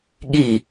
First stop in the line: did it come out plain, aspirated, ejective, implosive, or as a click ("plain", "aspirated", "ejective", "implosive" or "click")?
implosive